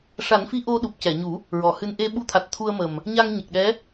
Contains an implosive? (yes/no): yes